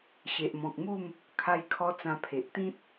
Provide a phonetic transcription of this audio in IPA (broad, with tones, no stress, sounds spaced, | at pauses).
ɕ e˨ ʔ m ɔ̃˨ k̚ m u˥˧ m | kʰ a˦ j kʰ ɔ˦ t͡s ã˧ pʰ e˨ ʔ t̪ ĩ˦ t̚